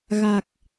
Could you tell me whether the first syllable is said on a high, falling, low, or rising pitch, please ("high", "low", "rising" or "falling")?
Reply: low